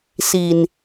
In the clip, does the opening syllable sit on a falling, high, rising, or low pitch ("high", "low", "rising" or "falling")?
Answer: low